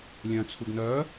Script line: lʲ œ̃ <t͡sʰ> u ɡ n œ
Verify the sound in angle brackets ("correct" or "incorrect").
correct